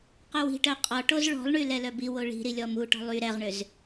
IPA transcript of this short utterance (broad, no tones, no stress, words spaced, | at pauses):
qœwi̤ʈœ qʼɔʈoz ɭɔ̤lˠɳy lɛlœbiwo ɭi̤ɾi lʲɔmuʈɔ̤lˠ y ɾɛʁɳʏz